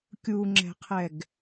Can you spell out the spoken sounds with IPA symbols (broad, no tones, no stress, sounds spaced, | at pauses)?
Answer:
kʲ u ŋ͡ǁ ɛ̤ qʰ ɛ ɡ